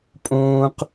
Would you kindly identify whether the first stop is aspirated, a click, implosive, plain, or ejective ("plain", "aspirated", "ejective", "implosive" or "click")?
ejective